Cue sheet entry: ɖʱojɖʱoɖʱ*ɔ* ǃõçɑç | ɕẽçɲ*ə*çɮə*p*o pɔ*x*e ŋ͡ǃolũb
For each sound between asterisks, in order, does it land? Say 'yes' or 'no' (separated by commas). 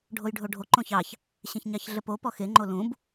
no, no, yes, yes